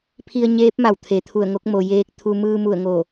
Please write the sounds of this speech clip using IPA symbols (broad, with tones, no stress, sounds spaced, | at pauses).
pʰ i˧ ə̯ ɲ eː˧˥ p̚ m a˧˩ w t̪ʰ e˩˧ t̪ʰ u˧˩ ə̯ ŋ o˧˥ k̚ m o˩ j eː˧ k̚ t̪ʰ u˧ m ɯː˧ m u˧˩ ə̯ ŋ o˧˩